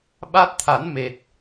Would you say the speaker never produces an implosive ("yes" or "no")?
no